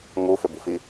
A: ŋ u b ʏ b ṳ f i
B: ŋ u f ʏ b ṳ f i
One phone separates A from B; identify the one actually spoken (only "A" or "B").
B